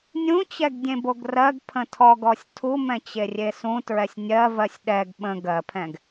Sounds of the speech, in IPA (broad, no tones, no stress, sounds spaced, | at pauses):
nʲ ũ t͡ɕ ɛ ɡ dʲ ẽ b o ɡ r ɜ ɡ pʰ ə̃ tʰ ɔ ɡ ɔ sʲ tʰ u m ɛ̃ t͡ɕ e rʲ e s ũ t ɹ ɛ sʲ nʲ ɜ v ɜ sʲ ɗ ɛ ɡ ɓ ə̃ ɡ ɜ pʰ ɛ̃ ɡ